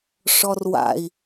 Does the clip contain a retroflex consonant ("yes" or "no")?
yes